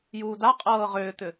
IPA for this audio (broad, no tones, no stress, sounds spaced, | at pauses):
j uː d a qʼ ɤː ʁ ʏː t̪ ʏ